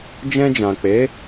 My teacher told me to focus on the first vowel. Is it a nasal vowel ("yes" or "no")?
yes